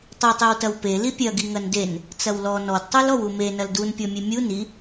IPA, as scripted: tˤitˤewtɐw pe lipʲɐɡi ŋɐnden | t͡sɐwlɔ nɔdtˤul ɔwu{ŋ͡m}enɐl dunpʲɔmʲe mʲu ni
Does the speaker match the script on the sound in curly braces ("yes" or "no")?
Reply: no